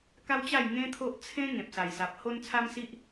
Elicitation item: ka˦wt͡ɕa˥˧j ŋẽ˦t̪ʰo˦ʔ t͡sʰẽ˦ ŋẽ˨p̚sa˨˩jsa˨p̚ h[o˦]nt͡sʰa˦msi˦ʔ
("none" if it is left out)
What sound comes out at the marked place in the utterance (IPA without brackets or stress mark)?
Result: o˦